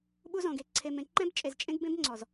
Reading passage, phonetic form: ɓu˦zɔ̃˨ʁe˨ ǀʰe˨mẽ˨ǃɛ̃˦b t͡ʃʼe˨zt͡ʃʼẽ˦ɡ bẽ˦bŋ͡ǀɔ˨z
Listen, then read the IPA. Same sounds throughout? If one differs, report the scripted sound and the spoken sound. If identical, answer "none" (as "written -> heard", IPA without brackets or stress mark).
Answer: ʁ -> ɡ